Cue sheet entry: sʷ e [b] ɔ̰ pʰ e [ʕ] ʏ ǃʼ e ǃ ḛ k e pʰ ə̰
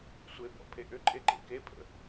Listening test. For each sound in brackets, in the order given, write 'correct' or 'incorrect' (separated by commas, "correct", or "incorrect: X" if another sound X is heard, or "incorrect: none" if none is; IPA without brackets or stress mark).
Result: correct, incorrect: ʔ